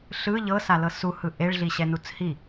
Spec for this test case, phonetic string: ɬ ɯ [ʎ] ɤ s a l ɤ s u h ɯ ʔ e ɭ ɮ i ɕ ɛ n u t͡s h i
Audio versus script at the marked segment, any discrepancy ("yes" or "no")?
no